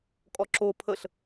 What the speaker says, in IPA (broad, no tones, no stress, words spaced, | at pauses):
kʼɔǁo pʰəɬ